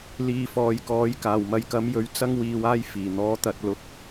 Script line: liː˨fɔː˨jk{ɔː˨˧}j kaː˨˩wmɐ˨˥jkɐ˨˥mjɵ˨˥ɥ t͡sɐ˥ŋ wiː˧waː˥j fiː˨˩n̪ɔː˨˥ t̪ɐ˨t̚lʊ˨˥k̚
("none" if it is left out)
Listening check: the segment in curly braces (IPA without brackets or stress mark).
ɔː˨˥